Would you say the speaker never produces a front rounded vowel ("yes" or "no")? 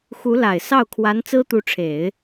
yes